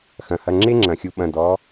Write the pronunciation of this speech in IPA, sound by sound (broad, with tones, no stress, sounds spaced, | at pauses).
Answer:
x ɐ̃˩ h ɐ˩˧˩ ŋ͡ǁ e˦ ŋ͡ǁ ɐ̃˩ xʲ u˨˦ ɓ ɐ̃˩˧˩ d ɔ˨˦